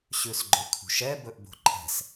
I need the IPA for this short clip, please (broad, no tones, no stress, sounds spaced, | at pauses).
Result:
ɕ ʉ s ɡ͡ǃ ɵ kʰ ṳ ʃ ɛ b ɵ ʔ b o̤ ǃʰ ɛ̤ s